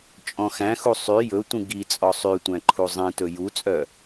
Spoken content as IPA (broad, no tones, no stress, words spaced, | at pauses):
t͡ʃʼɔ̃xæ̃xu sˤy jɵtʷĩ ɡi t͡sʼɔsˤytʷæ̃ ǃʰuzˤĩtɵ jut͡sʼœ